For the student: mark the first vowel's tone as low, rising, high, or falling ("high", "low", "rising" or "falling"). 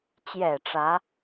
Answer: low